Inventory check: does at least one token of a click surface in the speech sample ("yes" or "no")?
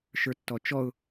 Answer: no